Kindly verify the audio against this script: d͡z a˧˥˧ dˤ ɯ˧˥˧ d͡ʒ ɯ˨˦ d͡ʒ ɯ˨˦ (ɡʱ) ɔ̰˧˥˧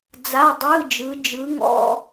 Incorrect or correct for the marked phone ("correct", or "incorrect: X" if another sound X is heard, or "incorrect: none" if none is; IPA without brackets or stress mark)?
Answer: incorrect: ŋ